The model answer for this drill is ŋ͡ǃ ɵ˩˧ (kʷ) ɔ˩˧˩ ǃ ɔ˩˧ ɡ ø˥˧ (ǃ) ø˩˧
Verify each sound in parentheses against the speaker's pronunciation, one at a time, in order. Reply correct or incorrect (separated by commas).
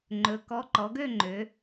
incorrect, incorrect